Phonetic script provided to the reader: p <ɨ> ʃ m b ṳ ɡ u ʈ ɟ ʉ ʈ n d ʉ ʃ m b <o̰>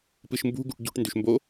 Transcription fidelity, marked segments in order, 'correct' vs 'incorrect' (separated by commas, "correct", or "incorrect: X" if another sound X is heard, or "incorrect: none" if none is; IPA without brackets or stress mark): correct, incorrect: o